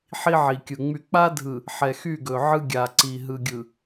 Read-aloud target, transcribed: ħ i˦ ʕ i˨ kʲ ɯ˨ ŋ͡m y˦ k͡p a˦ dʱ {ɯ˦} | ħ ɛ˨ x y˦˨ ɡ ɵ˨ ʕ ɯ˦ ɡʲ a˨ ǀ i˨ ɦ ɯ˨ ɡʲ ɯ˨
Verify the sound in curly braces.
incorrect: ɯ˨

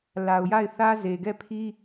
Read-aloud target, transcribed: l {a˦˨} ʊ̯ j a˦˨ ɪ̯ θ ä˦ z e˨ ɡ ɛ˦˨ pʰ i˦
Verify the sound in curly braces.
incorrect: a˨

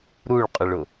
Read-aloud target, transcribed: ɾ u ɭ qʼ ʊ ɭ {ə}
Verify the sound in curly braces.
incorrect: ʊ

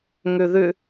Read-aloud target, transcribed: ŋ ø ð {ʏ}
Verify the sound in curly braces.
correct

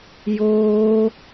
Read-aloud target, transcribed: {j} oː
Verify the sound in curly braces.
correct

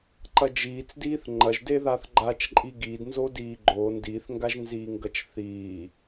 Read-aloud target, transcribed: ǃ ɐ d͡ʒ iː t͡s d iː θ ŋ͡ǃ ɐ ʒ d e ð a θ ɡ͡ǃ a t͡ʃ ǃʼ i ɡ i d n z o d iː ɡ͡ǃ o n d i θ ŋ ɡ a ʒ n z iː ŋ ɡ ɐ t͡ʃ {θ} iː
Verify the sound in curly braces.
correct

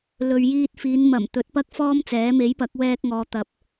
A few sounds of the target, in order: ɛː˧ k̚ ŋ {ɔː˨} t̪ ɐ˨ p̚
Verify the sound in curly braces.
correct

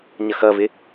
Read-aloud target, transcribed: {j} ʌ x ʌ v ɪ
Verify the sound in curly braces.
incorrect: ɲ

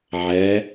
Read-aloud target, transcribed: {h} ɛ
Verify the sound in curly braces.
incorrect: ʕ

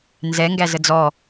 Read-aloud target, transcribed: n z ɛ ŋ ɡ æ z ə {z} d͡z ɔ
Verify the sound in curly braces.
incorrect: none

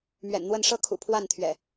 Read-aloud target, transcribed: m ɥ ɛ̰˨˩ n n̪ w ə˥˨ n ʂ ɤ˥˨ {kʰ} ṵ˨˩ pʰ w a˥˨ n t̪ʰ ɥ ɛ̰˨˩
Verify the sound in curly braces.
correct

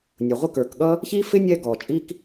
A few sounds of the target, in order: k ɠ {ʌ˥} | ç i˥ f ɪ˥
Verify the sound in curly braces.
correct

